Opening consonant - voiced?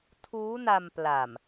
no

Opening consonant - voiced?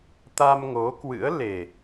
no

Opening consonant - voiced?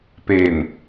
no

